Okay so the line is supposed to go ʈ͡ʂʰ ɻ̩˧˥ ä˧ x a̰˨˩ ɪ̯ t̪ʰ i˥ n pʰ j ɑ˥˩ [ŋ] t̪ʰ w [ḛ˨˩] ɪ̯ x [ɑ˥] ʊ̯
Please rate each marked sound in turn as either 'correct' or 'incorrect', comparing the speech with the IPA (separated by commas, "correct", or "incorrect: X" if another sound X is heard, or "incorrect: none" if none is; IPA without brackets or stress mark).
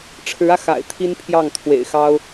correct, correct, correct